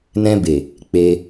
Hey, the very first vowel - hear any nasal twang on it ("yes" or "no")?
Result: yes